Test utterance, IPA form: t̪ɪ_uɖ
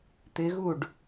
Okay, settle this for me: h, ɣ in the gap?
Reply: ɣ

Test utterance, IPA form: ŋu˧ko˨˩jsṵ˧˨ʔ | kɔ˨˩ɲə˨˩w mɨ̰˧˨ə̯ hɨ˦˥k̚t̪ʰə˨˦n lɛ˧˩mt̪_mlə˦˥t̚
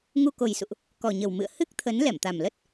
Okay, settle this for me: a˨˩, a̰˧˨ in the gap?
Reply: a˨˩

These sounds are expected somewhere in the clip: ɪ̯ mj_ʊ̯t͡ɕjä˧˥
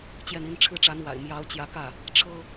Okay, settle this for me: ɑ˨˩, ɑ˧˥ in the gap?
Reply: ɑ˧˥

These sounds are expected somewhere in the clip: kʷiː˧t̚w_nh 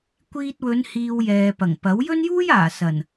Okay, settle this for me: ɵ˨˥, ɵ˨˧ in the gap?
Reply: ɵ˨˧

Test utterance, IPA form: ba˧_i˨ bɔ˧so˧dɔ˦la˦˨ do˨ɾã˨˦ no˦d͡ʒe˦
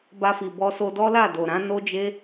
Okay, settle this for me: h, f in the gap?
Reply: f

